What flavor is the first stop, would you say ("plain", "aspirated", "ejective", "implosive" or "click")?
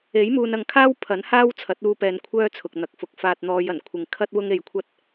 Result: aspirated